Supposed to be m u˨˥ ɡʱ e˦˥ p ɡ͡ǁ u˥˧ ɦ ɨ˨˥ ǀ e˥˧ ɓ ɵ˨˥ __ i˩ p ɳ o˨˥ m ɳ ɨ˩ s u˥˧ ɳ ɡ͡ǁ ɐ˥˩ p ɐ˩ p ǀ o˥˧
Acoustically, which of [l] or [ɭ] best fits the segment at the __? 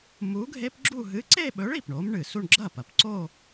ɭ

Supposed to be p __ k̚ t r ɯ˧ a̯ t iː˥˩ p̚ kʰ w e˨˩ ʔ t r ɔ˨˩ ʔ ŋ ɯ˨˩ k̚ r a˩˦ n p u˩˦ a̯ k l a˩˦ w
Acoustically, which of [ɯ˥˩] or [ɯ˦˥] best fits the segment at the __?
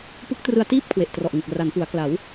ɯ˦˥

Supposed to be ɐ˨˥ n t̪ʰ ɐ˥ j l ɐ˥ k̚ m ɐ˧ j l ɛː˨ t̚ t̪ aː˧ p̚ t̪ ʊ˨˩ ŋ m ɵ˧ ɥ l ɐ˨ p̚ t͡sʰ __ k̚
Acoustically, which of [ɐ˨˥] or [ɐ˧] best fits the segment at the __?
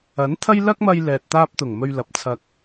ɐ˧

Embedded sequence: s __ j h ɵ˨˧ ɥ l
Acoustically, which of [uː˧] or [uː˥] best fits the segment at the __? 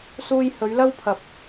uː˧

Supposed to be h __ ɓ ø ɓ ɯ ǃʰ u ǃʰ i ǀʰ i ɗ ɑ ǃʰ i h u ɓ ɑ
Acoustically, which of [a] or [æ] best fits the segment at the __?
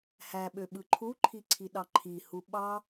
æ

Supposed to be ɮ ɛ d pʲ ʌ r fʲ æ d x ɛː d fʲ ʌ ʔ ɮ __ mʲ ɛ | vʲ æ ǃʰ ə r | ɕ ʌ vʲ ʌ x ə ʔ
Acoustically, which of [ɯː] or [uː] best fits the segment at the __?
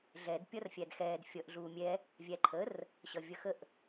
uː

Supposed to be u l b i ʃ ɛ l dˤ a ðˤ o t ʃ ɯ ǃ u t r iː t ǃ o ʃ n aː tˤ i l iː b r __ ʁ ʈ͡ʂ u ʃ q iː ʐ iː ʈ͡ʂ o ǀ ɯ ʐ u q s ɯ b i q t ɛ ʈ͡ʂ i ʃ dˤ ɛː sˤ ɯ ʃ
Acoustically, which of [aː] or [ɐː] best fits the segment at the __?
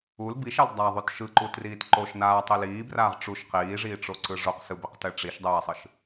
aː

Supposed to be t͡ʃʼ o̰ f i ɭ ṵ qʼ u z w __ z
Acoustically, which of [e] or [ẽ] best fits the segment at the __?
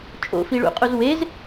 e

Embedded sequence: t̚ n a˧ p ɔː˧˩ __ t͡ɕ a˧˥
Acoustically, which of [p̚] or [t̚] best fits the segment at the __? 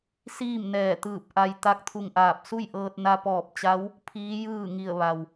p̚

